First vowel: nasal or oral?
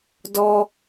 oral